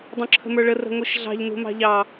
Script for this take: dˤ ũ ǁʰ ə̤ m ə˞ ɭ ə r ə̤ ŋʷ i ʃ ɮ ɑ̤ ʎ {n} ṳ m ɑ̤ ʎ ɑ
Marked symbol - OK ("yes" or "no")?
yes